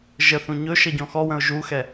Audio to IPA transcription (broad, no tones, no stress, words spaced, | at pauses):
ʒəθũ ɲɵ ʃʌɟɔ̃xɔwə̃ʊ̯ ʒuxɛ